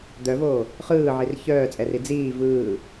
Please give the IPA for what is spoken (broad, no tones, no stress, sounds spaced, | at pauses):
d̪ œ v oː | χ ɯː ʕ i r ç œː t͡sʼ ɛ r i d͡z iː v ɯː